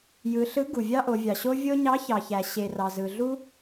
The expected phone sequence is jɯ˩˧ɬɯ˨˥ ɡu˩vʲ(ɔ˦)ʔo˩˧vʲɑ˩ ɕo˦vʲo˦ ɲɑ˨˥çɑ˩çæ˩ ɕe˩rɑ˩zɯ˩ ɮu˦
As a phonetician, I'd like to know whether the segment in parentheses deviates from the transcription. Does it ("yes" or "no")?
yes